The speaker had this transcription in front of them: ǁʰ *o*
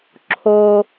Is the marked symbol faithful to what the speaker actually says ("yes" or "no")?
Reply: yes